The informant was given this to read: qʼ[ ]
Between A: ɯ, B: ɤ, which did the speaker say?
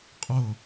B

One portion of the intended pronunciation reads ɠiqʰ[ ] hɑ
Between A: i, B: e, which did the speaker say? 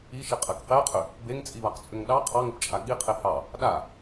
B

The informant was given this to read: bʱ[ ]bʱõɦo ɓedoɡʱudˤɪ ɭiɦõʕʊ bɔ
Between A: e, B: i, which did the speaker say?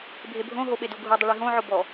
A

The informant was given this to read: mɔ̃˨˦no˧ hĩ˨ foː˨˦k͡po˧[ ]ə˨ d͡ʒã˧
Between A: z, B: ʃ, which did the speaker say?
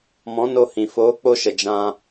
B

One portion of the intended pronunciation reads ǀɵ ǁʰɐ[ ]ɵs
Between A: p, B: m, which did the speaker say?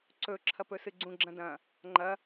A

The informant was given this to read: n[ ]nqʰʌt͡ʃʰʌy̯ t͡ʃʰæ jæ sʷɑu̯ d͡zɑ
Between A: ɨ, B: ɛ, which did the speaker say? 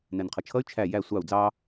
B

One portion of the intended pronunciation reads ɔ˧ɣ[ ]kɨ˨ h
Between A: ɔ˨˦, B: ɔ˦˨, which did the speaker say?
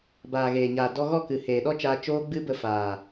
B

